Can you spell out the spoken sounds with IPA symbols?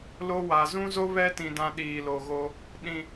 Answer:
l o˦ w a˨ z ũ˦ z o˦ β ɛ˦ t ĩ˨ d ã˦ ɗ iː˨ l o˨ ɣ o˦ | ɗ ĩ˨

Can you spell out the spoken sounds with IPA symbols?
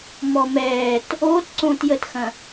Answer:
m ɔ m ɛː t | oː t ǀ õː t j ə t x ɐ̃

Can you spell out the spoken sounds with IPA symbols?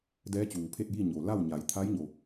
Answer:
d ɛː˧˥ t͡ɕ uː˩ pʰ e˥˨ t̚ j i˥˨ ɲ o˩ l a˥˨ w ɲ a˩˧ j t̪ʰ a˧˥ j ɲ o˩

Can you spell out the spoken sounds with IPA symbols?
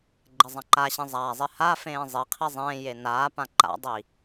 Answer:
ɡ͡ǃ e zˤ ã ǃ a ɕ ĩ zˤ aː zˤ i h a f ẽː zˤ i qʰ i zˤ ẽː j e n aː p ã ǃ a̰ dˤ i

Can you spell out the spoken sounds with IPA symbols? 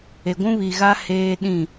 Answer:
e˨ ɡʷ ũ˦ β i˨ ɣ a˦ h eː˦ ɗ ĩ˦˨

